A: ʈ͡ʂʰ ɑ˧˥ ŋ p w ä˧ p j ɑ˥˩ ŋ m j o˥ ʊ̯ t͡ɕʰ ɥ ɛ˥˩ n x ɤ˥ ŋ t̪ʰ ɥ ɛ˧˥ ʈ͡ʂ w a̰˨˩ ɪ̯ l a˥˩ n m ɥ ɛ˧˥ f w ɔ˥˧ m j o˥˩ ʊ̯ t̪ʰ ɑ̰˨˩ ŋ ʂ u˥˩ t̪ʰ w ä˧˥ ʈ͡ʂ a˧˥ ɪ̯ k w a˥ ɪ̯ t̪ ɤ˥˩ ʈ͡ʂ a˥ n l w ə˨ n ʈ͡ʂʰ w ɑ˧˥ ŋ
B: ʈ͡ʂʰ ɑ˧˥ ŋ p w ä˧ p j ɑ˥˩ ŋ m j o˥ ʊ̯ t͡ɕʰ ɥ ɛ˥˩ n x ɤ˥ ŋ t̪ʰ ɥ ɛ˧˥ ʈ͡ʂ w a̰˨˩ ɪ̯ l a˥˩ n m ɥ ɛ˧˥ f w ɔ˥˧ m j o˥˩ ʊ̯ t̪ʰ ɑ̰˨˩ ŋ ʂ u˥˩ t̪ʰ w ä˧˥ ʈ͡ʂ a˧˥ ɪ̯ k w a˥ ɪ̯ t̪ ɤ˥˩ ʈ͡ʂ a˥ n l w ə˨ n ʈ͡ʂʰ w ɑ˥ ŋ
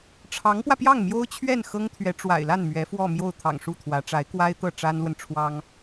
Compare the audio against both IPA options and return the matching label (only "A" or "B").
B